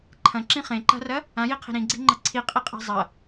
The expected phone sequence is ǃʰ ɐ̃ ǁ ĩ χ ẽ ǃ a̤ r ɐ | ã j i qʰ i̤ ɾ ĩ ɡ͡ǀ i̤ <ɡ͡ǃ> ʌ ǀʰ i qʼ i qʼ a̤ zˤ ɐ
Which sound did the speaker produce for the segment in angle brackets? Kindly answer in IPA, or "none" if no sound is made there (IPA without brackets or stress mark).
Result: ŋ͡ǃ